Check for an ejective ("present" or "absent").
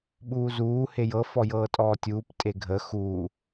present